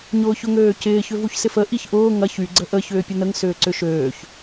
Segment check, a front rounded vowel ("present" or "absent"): present